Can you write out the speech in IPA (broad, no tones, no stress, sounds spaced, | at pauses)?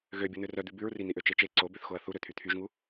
ɣ ø bʲ o n̪ ø r œ d̪ ʉ b ʉ ɹ r i n̪ i ʔ ø t͡ʃ e t͡ʃ e ǀ o b ø θ x o ɐ̯ θ u ɾ ø t̪ʰ y t̪ʰ y ʒ ŋ u